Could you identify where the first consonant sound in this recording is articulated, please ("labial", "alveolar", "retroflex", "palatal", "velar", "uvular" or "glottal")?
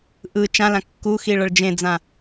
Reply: glottal